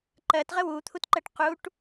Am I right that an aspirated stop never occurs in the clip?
no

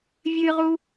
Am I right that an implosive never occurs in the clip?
yes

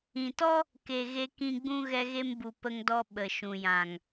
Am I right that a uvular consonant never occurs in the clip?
yes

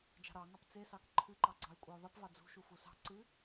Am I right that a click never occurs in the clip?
no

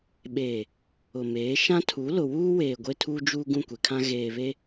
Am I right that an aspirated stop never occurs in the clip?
no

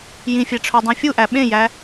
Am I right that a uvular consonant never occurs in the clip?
yes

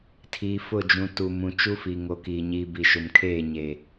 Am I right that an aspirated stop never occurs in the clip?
no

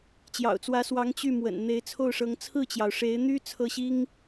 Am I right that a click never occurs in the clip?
yes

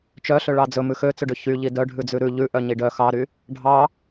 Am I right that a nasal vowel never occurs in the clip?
yes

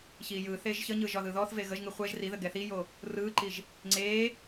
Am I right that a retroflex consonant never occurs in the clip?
yes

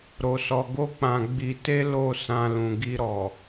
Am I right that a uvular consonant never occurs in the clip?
yes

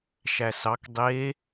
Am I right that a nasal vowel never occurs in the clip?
yes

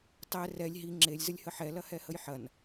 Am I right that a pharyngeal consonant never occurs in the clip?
no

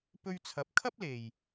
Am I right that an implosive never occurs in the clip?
yes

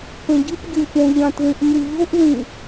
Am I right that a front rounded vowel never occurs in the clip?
yes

